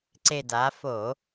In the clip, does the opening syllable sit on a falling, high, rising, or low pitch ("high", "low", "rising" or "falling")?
low